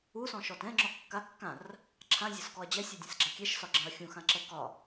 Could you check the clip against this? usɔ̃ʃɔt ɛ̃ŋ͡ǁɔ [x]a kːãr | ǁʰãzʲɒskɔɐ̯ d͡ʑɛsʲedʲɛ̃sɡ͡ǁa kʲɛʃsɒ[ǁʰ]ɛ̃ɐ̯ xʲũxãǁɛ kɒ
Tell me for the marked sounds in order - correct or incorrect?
incorrect: kː, incorrect: ɡ͡ǁ

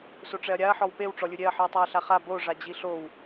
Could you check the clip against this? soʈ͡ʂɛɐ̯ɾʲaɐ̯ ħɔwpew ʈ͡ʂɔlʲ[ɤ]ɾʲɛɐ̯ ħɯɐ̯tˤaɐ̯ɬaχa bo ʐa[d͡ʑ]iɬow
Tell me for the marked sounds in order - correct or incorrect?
incorrect: ɯ, correct

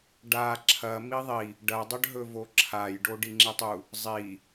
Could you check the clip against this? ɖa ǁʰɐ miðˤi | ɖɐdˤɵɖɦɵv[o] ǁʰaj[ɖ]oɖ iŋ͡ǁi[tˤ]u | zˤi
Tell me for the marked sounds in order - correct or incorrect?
correct, correct, correct

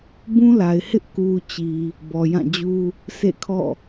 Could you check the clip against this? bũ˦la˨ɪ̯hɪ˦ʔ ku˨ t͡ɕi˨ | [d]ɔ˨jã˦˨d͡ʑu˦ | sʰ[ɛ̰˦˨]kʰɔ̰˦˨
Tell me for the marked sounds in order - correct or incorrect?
incorrect: b, incorrect: ḛ˦˨

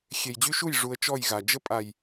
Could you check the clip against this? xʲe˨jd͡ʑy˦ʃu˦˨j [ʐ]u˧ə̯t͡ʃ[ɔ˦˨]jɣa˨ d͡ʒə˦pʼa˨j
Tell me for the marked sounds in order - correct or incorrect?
correct, correct

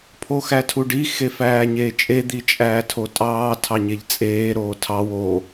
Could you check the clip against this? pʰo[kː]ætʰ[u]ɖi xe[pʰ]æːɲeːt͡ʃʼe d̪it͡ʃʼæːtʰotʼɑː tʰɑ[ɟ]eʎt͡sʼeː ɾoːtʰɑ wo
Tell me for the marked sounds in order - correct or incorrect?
incorrect: x, correct, incorrect: f, incorrect: ɲ

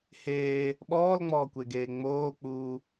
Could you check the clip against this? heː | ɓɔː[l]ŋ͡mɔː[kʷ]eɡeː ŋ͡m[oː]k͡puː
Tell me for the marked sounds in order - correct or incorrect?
correct, correct, correct

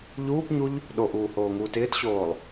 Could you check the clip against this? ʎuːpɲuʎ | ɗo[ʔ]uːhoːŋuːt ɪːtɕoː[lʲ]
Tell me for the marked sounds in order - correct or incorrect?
correct, incorrect: lˠ

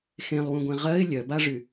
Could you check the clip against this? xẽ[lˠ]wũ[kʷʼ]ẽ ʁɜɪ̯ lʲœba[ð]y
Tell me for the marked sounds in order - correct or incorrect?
correct, incorrect: ɡʷ, incorrect: ʐ

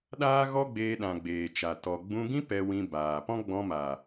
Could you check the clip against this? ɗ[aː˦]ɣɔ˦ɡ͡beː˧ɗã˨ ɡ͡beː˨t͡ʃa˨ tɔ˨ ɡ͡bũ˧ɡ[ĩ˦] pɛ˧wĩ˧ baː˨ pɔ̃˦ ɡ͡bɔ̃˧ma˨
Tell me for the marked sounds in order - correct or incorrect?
correct, correct

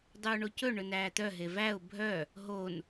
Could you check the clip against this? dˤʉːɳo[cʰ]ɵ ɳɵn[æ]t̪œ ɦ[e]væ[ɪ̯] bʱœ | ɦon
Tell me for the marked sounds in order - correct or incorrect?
incorrect: c, incorrect: æː, correct, incorrect: ʊ̯

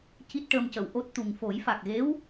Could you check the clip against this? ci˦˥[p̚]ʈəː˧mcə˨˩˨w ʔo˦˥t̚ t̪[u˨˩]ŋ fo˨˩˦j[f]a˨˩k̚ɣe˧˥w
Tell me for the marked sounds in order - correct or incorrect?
incorrect: t̚, correct, correct

